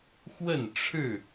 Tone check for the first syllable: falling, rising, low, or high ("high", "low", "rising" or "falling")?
falling